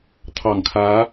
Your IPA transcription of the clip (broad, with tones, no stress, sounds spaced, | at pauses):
t̪ʰ ɑ˨˩ ŋ kʰ ä˧˥